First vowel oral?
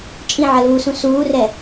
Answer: no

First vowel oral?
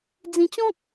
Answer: no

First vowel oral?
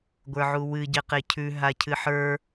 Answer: yes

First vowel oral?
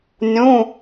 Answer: no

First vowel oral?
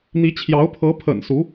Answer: yes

